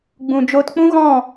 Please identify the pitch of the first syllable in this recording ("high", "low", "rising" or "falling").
low